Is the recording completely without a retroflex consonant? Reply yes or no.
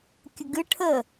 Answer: no